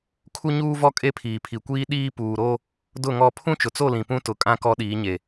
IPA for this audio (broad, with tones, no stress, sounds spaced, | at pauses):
kʰ u˦ ɲ uː˦ v ɔ˦ kʼ e˦ pʰ iː˨ pʰ i˨ kʷ iː˦ ɗ iː˦ p uː˨ ɾ o˦ | d ʊ˦˨ ŋ ɔ˦˨ pʰ ũ˦ t͡ʃ ʊ˨ t͡s o˦˨ l ĩ˨ p ũ˦ t ʊ˨ kʼ ã˦ k ɔ˦ ɗ iː˨˦ ɲ e˨